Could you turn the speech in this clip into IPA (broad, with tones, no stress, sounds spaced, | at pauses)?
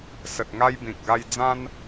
s ə˨ t̚ ŋ a˧ j b ĩ˨ k̚ ɡ a˧ j d͡z ã˦ n